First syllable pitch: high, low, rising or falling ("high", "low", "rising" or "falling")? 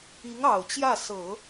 rising